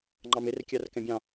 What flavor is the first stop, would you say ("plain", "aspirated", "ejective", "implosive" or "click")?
click